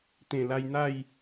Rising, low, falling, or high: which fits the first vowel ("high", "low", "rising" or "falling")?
low